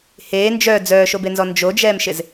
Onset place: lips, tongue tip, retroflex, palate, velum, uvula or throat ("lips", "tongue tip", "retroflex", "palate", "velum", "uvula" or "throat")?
throat